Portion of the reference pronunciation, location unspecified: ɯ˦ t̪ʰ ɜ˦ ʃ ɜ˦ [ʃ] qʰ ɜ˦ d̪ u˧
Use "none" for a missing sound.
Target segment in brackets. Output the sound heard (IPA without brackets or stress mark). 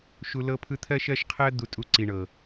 ʃ